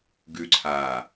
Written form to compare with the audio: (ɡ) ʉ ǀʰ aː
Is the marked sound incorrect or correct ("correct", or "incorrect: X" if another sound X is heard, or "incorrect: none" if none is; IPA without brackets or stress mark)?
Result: correct